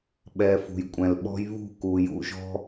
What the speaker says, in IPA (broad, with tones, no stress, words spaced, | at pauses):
ɓɛ˨ fṳ˨jkʷʼɛ̃˨lɓɔ̤˦j βṳ˦˨ku˨jṵ˧ʒɔ̤˦